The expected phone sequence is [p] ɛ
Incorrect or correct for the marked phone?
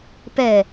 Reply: correct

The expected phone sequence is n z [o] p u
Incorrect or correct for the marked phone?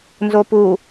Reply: correct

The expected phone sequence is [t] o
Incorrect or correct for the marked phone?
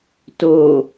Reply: correct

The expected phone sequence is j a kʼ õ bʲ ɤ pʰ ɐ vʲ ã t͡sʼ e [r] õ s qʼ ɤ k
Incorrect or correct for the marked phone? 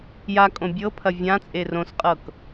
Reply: correct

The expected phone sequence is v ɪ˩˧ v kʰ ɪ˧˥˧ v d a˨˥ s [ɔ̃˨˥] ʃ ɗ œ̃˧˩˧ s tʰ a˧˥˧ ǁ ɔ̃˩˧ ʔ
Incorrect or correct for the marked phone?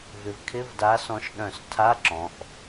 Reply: correct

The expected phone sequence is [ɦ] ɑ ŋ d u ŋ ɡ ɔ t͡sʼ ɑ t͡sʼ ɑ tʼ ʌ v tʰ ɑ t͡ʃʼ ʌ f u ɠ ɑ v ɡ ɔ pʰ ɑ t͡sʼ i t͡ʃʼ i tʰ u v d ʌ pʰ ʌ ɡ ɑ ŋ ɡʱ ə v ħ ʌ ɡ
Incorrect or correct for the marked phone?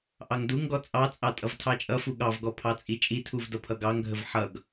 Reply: incorrect: ʔ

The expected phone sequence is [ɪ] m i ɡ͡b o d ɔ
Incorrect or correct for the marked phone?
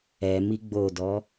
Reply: incorrect: ɛ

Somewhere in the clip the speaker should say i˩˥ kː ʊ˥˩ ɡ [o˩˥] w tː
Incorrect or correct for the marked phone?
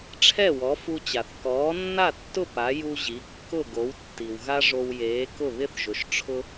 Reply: correct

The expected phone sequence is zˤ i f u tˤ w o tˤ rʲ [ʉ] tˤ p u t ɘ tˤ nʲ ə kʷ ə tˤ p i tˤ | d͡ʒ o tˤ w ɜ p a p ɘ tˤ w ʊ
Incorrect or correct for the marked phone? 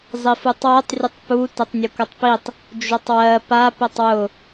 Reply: incorrect: ə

